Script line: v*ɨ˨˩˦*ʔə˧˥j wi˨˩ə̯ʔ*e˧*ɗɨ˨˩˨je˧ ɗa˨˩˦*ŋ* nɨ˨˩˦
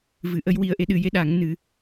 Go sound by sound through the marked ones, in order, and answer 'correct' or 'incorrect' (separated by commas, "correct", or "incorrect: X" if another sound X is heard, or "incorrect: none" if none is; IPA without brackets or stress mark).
correct, correct, correct